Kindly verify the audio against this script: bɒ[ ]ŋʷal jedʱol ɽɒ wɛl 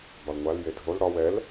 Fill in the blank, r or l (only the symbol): l